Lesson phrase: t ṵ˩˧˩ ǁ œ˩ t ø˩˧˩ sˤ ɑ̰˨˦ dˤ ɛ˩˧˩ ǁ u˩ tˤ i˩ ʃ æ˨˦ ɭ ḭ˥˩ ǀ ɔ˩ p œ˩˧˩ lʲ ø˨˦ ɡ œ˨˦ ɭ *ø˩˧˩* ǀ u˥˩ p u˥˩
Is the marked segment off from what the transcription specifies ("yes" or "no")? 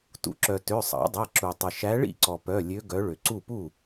yes